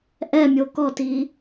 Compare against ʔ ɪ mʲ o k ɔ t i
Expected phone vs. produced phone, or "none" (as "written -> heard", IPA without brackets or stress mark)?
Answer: ɪ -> ɛ